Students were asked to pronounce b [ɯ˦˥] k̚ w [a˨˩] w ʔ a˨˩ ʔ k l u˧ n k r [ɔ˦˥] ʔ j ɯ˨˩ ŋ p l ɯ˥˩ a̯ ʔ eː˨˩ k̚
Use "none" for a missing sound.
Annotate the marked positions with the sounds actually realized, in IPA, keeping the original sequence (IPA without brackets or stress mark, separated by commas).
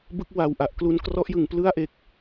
ɯ˦˥, a˨˩, ɔ˦˥